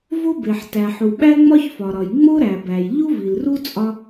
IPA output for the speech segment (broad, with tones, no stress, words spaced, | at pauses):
vo˥be˩ħtæ˩ħu˩ ɓæ˥ŋ͡mɒ˥çfɒ˩ɾɒ˩j ŋ͡mo˥ɾæ˩bæ˩j ʎu˥vi˩lru˥ t͡sʼɒ˥